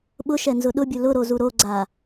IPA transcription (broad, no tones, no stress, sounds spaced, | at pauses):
ɓ ʊ ʃ ɛ n z ʊ ɗ ʊ bʲ ʊ l ʊ ɾ o z u ɾ o ɡ͡ǀ a